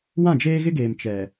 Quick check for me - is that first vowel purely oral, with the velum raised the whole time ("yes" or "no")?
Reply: no